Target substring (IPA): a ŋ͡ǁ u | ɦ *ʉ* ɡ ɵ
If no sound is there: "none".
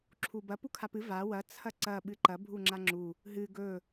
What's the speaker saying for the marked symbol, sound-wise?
ɨ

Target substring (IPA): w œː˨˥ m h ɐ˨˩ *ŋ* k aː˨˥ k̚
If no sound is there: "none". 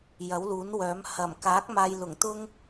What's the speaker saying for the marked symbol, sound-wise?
m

